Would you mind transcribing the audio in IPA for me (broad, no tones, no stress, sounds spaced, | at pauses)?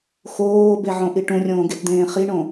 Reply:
x oː b e ʕ õ ʔ i ʈ ũ rʲ õː ɡ e t d̪ ẽː χ i ɳ õ